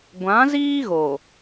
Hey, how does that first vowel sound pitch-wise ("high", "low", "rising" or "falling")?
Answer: rising